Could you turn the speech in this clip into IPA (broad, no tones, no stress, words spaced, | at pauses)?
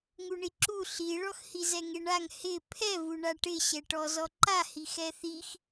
ŋuɳiǁu ɬiɭɔx hizɛŋeɳaŋ hɪ pʰɛvu ɳaʈɪɕɛ ʈɔzɔǃa hixɛθix